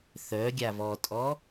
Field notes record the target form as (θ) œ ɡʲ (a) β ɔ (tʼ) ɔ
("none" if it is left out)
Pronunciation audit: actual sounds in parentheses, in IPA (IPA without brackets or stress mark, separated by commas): θ, a, tʼ